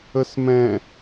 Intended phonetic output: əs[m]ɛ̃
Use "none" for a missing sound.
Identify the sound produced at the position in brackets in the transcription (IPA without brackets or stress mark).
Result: m